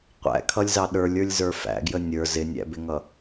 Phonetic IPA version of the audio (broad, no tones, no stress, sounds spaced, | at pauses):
qʷ æ̰ kʰ ʌ lʲ z ɑ ɗ ə˞ lʲ ə˞ lʲ z ə˞ f æ̰ ɡ j ə nʲ ə˞ z ɪ nʲ æ̰ b ɪ ŋ ʌ